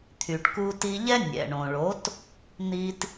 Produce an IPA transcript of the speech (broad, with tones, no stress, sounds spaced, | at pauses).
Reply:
t̪ʰ y˩ ʈ k u˧ t i˧ ʎ ɛ˥ nʲ ɛ̰˩ ɳ õ˩ ɭ o˩˥ t | n̪ i˧ t